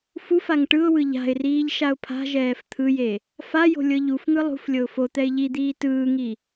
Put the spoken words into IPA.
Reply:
f u f a ŋ ʈ ɯ ʊ̯ w ɯ ʎ a̤ ɪ̯ r iː ʎ ʃ a ʊ̯ pʰ a̤ ʒ ɛː f t̪ʰ ɯ j e | f a j o̤ lʲ ɤ ʎ u f ŋ ɯ lˠ ṳ f lʲ ɤ ʊ̯ f o t̪ ɛ ɪ̯ ʎ i d̪ iː t ɯː ŋ i

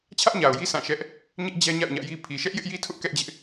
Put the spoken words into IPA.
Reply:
t͡ɕʰ ä˦ ʔ ɲ a˨ ʊ̯ j i˦ s ã˦˨ ʃ ɛ˦ ʔ | ɲ ɪ˦ ʔ d͡ʑ ɛ˦ ɲ a̰˦˨ ʊ̯ ɲ ä̰˦˨ j i˦ pʰ i˨ ʃ ɛ˦ ʔ j ɪ˦ ʔ j i˦ tʰ ʊ˦ ʔ k ɛ˦ ʔ d͡ʑ ɪ˦ ʔ

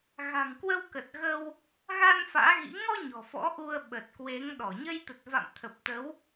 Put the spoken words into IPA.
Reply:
ɣ a̤˨˩ ŋ k w ə˧ w k ə˨˩ t̚ ɣ ə˧ w | ɣ a˧ n f a̰ː˧˥ ɣ ḭ˧˥ ŋ ɔ˧ ɲ ɔ̤˨˩ f ɔ̰˧˥ ʔ u˧ ə̯ ɓ ə˨˩ t̚ k w e˨˦ ŋ ɗ ɔ˧˩ ɲ ə˧ j t̪ ə˨˩ t̚ v a̰˧˨ m t̪ʰ ə˨˩ p̚ t̪ ə˨˦ w

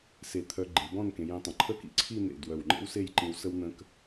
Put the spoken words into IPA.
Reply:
s e˧˩ t̪ʰ œ˧ ɡ͡ǃ i˩˧ b ɔ̃˥˧ n k ẽ˩˧ j ẽ˧ tˤ ə̃˩˧ ǃʰ ə˥˧ k ḭ˥ ǀʰ i˥˧ n̪ ḛ˧˩ d w œ˧˩ w ŋ͡ǃ ḛ˥ w s e˥˧ j ǃ ĩ˧ w s ə˥ w n̪ ə̃˧ k

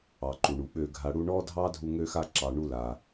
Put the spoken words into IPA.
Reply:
ɑ˨ ǃ u˨ ɳ u˨ ɓ ø˧ ɡʱ a˧ ɽ u˧ ɳ ɔ˦ dʱ ɑ˦ dʱ u˧ ŋ ø˧ x a˧ ǁ ɑ˨ ɳ u˧ l a˨

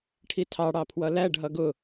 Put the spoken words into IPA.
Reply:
ʈʰ i tʰ ɑ ɽ ɑ pʰ w ʌ l æ ɖ ɦ ʌ ɡ ʊ

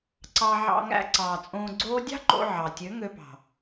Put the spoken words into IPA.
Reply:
ǀ ɑ˧ ʕ ɑ̰˧ ŋ æ̰˧ ǀ ɑː˨ t͡sʼ õː˧ ɡ͡ǀ oː˦ dʲ ɑ̤˦ ǃ o̰˧ ʕ ɑ˨ tʲ ø˨˦ ŋ ø˧ p ɑ̤˨

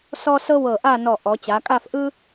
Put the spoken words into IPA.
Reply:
s ɔ˥ s ɤ˥ w ɤ˧˩ ʔ a˥˧ n ɔ˧˩ ʔ ɔ˩˧ t͡ɕ a˩˧ kʼ a˥˧ f ʔ ɯ˥

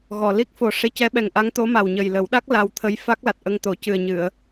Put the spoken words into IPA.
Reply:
ɣ ɔ˨˩ l i˦˥ k̚ f o˨˩ ʂ e˧˥ c ɛ˧˥ ɓ ɛ˨˩ ŋ ʔ a˧˥ ŋ t̪ o˧˥ m a˨˩ w ɲ ə˨˩ j l ə˨˩˦ w ɗ a˦˥ k̚ l a˧ w t̪ʰ ə˧ j f a˦˥ k̚ l a˨˩ t̚ ʔ ə˧ ŋ t̪ o˨˩˦ c ɨ˨˩ ə̯ ɲ ɨ˨˩˨ ə̯

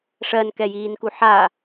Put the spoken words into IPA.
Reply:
ʂ ɜ n k ɛ j iː n k u ħ a

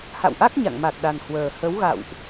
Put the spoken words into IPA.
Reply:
h a̰˧˨ w ʔ a˦˥ k̚ ɲ a̰˧˨ ŋ m a˨˩ k̚ ɗ a˨˩ n h w əː˨˩ h ə˨˦ w ɣ a̰˧˨ w ʔ

